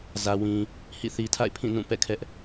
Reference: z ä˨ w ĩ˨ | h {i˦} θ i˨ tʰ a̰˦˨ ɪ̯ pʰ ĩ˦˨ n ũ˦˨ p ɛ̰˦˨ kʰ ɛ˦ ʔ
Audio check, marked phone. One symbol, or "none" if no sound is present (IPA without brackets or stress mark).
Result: ḭ˦˨